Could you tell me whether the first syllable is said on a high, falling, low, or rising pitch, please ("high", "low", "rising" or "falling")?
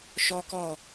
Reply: high